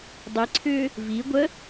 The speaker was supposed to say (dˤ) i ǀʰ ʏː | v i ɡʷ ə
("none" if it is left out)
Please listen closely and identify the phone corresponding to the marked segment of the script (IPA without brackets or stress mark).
dˤ